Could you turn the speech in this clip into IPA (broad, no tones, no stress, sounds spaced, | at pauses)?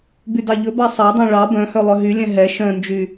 b y d ɑ ʎ ɵ b ɑ sˤ ɑ dˤ œ̃ ɭ ɑ b œ̃ h œ lˠ œ ɦ y lʲ ɛ̃ ɦ ɛ ʃ œ̃ n d͡ʒ y